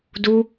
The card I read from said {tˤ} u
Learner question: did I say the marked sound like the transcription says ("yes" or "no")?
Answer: no